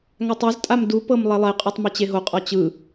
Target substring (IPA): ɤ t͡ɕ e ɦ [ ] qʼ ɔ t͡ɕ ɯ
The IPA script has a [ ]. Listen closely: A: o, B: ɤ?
A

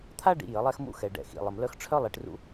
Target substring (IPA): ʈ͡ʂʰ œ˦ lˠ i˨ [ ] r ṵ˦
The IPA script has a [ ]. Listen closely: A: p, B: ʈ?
B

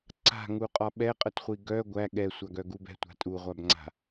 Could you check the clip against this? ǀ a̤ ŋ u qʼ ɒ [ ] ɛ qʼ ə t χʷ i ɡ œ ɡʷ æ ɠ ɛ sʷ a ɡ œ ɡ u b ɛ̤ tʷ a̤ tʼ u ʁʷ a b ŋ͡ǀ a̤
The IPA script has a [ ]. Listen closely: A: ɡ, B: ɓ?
B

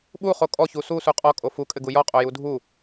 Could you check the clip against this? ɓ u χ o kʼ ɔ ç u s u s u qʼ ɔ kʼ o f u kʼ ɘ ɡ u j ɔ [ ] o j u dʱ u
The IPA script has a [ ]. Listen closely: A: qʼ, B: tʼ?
A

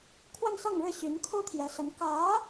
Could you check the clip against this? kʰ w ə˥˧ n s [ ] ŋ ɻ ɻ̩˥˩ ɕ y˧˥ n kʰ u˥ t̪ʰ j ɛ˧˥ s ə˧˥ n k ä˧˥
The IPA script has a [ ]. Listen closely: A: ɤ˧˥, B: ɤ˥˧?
B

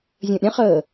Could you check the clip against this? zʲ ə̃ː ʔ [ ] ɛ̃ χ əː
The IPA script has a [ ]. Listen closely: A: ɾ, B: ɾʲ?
B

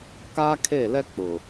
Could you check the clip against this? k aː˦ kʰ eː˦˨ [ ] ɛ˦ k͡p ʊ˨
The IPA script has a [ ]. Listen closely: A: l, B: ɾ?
A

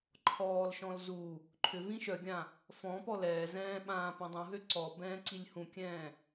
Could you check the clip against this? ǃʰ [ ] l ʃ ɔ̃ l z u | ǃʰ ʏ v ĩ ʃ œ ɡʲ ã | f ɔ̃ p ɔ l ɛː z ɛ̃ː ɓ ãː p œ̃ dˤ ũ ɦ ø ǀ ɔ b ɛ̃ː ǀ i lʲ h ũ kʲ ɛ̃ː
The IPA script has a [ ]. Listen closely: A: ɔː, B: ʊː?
A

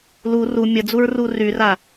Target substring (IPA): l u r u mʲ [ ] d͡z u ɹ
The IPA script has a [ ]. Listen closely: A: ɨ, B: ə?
B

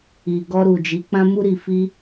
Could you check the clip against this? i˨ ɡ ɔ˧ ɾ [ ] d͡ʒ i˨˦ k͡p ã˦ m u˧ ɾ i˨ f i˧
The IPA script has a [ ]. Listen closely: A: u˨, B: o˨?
A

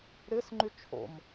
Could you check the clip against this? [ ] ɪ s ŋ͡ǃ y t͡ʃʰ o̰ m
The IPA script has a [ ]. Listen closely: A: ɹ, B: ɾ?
B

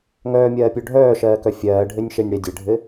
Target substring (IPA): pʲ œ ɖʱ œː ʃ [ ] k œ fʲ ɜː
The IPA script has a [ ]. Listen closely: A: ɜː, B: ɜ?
A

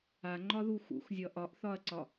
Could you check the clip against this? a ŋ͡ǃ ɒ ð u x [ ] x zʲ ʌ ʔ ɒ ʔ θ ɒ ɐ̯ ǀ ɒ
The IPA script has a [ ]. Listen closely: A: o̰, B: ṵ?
B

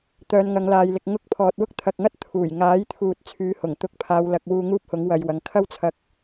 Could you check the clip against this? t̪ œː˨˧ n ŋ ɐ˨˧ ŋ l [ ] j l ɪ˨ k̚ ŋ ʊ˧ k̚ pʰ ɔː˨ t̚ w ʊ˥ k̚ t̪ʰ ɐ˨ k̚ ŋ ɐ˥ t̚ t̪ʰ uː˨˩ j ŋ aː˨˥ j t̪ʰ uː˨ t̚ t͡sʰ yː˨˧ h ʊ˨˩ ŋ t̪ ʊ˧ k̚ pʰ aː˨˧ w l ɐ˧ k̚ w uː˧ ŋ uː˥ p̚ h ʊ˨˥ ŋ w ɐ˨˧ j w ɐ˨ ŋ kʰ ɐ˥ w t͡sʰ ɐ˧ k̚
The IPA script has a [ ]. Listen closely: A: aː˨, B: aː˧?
A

